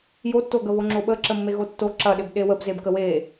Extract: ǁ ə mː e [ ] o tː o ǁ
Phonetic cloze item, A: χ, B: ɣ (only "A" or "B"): B